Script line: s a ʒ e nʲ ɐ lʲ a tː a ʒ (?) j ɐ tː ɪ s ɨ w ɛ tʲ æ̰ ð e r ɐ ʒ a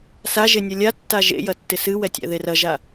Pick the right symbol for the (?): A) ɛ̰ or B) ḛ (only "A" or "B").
B